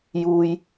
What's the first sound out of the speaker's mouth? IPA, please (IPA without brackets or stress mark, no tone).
j